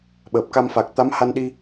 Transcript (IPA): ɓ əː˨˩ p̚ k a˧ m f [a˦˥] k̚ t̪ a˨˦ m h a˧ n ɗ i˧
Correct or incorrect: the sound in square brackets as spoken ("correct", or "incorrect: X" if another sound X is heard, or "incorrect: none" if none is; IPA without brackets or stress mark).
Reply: incorrect: a˨˩